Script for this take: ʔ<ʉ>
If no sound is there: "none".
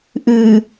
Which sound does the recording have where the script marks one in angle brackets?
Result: ʉ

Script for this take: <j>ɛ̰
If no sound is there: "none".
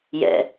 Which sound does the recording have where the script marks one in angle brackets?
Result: j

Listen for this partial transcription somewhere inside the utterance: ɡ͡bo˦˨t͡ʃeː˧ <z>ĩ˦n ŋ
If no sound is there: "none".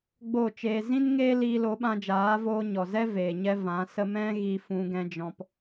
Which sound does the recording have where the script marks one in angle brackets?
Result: z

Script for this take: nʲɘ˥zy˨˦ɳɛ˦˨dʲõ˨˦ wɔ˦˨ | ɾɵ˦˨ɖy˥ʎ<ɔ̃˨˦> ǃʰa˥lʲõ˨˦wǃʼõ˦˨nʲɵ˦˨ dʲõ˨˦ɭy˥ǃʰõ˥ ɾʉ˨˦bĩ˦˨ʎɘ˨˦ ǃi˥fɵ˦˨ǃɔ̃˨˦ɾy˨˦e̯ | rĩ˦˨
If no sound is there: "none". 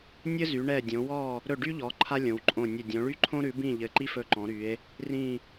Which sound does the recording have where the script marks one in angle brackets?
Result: ɔ˨˦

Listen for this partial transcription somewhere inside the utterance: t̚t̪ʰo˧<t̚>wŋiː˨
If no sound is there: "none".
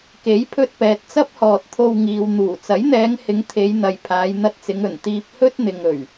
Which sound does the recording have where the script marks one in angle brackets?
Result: none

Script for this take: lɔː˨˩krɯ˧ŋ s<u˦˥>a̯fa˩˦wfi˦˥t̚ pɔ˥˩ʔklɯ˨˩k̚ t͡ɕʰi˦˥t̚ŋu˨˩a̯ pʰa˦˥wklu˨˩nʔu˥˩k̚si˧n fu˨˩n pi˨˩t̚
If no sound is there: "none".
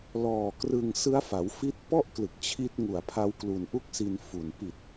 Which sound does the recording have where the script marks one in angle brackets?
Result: ɯ˦˥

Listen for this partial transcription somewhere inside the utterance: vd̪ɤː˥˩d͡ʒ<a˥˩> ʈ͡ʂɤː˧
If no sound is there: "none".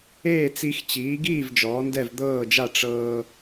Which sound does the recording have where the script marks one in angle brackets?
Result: a˥˩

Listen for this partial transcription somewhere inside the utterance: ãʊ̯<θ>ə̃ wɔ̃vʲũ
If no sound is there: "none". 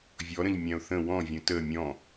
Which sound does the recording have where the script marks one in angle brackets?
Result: θ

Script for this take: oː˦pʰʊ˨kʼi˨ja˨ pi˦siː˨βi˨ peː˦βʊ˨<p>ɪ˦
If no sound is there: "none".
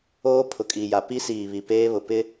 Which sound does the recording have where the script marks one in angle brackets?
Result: p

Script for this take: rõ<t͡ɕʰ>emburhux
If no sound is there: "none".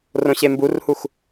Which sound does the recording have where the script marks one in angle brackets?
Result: ɕ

